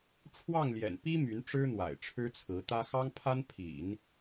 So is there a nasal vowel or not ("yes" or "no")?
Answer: no